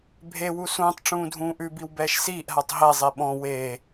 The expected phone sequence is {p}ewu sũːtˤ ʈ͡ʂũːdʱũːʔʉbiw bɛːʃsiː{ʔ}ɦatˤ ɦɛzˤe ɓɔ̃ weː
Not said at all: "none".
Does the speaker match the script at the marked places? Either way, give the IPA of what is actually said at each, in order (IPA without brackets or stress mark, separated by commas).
bʱ, ʔ